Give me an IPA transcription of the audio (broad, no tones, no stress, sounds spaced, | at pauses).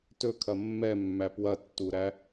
t ɵ kʰ ɐ mː ɛ mː æ p w ɐ tː u ɾ æ